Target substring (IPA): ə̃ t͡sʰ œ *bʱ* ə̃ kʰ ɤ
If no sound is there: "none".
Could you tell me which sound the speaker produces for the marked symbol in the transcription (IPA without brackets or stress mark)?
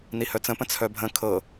bʱ